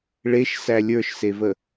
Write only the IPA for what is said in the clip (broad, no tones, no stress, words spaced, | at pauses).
ɭeʃsæ lʲə˞ʃsevə